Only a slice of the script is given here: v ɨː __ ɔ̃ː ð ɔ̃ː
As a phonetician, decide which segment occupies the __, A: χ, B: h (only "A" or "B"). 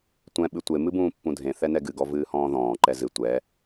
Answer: B